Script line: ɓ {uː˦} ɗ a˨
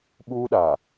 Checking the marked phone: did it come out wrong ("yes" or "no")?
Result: no